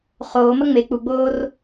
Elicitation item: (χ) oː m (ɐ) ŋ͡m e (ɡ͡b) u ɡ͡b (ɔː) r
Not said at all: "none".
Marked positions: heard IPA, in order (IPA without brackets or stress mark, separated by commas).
χ, ɐ, k͡p, oː